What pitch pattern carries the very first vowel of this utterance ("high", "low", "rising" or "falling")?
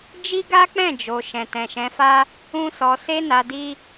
high